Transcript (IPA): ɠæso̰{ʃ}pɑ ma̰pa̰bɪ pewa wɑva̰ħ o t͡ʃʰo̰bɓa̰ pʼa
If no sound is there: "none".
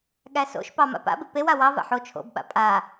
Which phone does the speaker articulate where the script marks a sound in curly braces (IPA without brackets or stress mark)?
ʃ